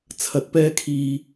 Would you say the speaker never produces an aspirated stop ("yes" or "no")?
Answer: no